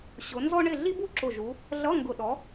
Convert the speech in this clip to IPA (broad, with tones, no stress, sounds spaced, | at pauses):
ɕ ʊ˨˦ n z ɔ˥ ɳ ɪ˥˨ ɮ i˥ b u˥ ǁ ʊ˧˩ ʒ u˨˦ | ɮ ʌ˧˥˧ ŋ ɡ ʊ˧˩ ɗ ɔ˨˦